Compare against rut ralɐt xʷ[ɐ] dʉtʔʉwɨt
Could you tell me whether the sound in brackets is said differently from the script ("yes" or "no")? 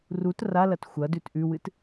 no